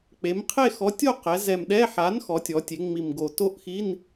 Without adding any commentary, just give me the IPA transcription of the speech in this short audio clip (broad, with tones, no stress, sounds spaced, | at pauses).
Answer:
k͡p e˩˧ m qʰ e˥˧ x ɔ˨˥ tʲ o˥˧ q ɛ˩˧ z ɛ˨˩ m ɗ ɛ˧˥˧ ħ a˨˥ n x ɔ˩˧ tʲ ɔ˩˧ tʲ e˩˧ ŋ͡m i˨˩ m ɡ o˨˩ t o˥˧ ʔ x i˧˥˧ n